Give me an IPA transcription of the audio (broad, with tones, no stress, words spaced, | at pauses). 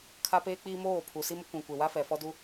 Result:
kʰa˦peː˦k͡piː˦ moː˦˨pʰu˨si˦m ʊ˦kʷĩ˨ kʷe˨wa˦fɛ˨ fɔ˦du˦